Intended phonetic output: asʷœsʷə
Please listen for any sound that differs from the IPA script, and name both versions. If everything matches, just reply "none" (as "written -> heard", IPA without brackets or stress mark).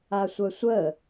none